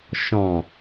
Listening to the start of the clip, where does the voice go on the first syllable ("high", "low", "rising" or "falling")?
low